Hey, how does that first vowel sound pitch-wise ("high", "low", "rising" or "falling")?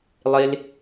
high